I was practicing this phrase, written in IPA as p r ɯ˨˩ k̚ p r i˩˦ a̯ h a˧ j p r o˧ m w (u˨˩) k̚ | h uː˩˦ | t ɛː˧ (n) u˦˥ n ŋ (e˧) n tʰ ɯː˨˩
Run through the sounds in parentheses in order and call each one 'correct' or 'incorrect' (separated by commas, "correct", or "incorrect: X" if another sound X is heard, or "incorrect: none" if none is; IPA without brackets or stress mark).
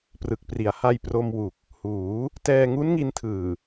correct, incorrect: ŋ, incorrect: i˧